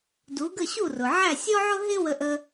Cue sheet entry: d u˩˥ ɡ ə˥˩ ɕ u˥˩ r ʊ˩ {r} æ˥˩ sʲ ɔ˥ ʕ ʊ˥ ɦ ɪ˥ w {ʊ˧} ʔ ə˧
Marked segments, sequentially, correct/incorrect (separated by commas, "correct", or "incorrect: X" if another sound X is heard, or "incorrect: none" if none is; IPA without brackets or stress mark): incorrect: ʕ, incorrect: ə˧